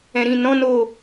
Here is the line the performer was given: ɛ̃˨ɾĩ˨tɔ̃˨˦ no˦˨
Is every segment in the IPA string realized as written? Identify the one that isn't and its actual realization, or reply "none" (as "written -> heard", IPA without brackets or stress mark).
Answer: t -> n